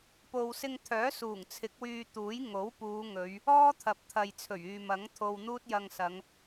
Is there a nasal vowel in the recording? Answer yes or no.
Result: no